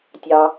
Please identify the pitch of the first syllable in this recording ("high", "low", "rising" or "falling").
low